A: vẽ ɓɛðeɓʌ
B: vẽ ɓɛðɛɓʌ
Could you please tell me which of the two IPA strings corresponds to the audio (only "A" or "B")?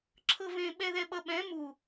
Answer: B